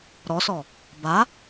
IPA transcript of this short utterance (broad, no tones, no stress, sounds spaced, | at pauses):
ɾ ɔ s ɔ | b a